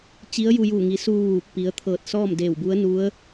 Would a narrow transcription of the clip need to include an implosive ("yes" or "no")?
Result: no